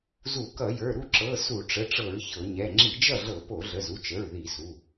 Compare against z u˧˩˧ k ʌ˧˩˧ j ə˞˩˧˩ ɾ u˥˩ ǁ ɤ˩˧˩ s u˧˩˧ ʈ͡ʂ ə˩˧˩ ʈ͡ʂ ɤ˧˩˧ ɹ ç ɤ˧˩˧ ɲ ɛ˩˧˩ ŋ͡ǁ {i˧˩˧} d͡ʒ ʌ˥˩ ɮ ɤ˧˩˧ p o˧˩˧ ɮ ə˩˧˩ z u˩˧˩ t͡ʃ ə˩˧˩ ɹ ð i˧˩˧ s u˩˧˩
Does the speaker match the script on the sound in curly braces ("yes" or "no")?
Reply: yes